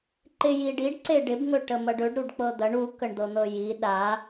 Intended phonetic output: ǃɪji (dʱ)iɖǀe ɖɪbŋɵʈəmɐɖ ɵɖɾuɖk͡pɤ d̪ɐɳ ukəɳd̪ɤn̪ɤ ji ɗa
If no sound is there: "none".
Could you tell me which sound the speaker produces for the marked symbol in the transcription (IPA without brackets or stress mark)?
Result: ɖ